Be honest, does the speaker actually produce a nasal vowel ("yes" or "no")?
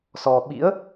no